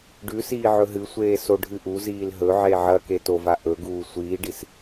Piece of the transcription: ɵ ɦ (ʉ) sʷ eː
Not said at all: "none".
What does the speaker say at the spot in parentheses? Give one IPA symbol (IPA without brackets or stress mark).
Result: ɨ